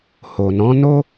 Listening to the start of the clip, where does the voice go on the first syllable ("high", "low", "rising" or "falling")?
low